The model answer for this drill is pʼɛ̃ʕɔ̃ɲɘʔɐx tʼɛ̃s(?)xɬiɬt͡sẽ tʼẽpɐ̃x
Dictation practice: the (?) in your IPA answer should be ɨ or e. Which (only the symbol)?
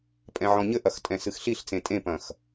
ɨ